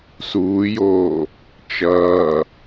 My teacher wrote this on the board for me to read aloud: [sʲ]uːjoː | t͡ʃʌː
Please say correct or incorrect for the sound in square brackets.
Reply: incorrect: s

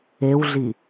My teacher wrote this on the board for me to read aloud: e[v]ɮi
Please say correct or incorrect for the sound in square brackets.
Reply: incorrect: w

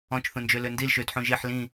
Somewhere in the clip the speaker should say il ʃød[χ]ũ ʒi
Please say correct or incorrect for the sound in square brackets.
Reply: incorrect: ħ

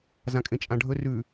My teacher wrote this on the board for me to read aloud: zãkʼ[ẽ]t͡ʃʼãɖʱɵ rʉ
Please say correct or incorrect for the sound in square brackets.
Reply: correct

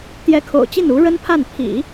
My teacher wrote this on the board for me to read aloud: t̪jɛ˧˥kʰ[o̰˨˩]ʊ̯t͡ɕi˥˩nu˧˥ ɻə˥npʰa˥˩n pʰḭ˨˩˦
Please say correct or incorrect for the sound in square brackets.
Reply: correct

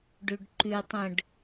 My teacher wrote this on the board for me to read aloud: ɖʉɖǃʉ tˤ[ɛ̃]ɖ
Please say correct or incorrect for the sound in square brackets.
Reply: incorrect: ə̃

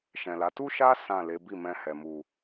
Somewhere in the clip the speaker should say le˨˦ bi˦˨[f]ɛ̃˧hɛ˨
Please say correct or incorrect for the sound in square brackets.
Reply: incorrect: m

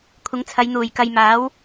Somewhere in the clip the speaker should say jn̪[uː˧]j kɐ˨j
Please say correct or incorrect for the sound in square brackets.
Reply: incorrect: uː˨˩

